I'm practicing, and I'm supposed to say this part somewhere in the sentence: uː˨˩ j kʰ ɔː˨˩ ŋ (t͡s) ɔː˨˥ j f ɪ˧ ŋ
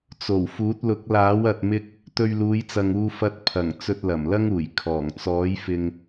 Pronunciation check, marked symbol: correct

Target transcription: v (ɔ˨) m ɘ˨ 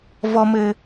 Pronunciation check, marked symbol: correct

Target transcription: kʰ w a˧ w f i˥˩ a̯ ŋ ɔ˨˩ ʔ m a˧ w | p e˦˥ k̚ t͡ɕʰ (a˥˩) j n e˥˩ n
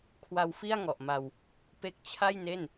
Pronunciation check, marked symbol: correct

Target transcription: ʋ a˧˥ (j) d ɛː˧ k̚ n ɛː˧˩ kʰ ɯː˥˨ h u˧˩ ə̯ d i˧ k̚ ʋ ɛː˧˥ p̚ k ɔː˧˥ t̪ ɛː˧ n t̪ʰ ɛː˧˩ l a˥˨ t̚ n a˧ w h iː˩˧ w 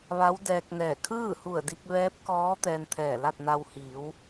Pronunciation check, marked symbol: incorrect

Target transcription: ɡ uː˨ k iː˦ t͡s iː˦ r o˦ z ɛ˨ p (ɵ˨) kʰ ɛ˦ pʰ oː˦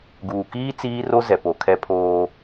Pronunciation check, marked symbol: incorrect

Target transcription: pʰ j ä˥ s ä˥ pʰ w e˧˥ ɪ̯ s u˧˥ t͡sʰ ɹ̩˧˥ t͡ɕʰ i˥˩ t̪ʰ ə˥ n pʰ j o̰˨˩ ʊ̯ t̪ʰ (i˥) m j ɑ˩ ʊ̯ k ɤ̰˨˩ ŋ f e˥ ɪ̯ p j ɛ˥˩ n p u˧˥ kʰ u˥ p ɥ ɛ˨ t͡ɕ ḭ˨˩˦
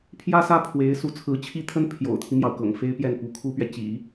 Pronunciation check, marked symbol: incorrect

